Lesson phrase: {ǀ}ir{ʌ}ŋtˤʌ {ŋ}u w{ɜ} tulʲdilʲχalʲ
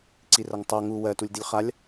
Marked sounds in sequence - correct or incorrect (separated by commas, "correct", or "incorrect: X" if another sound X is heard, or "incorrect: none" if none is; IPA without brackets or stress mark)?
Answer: correct, correct, correct, correct